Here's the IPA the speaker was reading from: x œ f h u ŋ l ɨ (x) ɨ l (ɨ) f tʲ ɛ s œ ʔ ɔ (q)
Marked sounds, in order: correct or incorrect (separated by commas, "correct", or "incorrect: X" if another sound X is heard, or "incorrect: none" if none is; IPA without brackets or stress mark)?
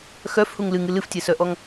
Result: incorrect: ŋ, correct, incorrect: ŋ